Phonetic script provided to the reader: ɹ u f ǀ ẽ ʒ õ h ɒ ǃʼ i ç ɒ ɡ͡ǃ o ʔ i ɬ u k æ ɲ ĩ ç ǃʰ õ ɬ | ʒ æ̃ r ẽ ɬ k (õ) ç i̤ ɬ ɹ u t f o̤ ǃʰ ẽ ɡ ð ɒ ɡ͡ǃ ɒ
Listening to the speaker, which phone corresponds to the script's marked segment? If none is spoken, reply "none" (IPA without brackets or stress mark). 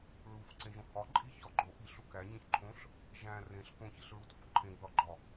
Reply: õ